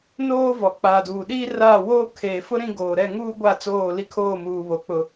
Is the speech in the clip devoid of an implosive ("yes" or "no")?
no